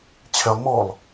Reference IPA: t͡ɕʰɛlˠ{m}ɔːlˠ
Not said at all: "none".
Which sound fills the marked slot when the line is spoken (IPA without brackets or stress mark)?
m